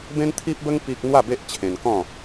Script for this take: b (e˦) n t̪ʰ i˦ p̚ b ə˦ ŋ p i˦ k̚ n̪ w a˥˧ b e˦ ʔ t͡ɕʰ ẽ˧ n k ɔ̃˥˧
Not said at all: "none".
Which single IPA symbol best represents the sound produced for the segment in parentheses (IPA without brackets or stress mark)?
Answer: ẽ˦